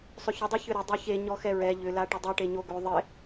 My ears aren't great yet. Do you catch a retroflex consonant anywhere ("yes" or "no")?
yes